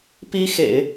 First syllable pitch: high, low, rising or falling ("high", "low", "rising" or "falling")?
high